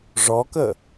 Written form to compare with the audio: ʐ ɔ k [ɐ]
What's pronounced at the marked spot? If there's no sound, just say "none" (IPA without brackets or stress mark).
ə